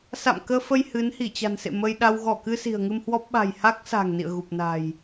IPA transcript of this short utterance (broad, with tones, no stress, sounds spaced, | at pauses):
s a̰˧˨ m k əː˧ f ə˧ j h ɨ˨˦ n h i˧˩ t͡ɕ a̤˨˩ n s ḛ˧˨ m ə˧ j ɗ a˧ w ɣ ɔ˧˩ k ɨ˧ s i̤˨˩ ə̯ ŋ ɨ˧ m h w ɔ˦˥ p̚ ɓ a̤˨˩ j h a˦˥ k̚ s a̤˨˩ ŋ n ḭ˧˨ ə̯ ɣ u˨˩ p̚ n a̤˨˩ j